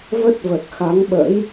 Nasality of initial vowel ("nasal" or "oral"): oral